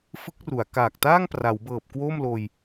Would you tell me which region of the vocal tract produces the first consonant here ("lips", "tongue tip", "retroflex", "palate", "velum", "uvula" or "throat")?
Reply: lips